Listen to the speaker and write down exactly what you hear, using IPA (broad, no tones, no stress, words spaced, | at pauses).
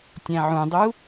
tʲæ̃ʕũdˤu